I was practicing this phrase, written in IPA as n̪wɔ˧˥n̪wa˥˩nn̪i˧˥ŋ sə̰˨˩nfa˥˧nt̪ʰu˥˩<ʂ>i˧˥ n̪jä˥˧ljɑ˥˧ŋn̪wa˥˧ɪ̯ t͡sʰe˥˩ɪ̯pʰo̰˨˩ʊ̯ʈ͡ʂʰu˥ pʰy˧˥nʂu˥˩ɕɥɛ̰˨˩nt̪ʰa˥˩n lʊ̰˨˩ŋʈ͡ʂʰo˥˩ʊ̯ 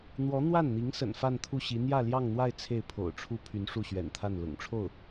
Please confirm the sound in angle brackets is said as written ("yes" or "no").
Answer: no